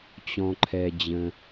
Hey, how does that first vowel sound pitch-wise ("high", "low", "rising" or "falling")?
high